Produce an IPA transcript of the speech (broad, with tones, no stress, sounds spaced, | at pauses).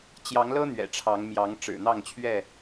t͡ɕ j ɑ˨˦ ŋ l ɤ˦ n̪ ɥ ɛ̰˨˩ ʈ͡ʂʰ ɑ˨˦ ŋ m j ɑ˨˦ ŋ ʈ͡ʂ ɻ̩˨˩ n̪ ɑ˥˨ ŋ t͡ɕʰ ɥ ɛ˥˨